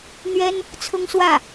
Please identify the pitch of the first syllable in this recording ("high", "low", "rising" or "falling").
high